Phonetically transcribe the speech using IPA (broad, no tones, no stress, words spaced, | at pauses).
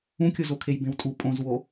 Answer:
ũkʲozokʰej bẽwtʼu pʼõzwo